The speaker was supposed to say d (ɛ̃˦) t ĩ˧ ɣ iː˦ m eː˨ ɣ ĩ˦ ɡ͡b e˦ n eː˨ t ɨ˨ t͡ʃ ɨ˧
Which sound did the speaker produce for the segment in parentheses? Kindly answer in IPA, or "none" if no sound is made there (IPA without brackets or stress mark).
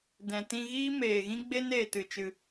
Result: ɛ̃˨